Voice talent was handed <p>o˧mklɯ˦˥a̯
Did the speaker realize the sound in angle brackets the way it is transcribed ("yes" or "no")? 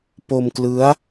yes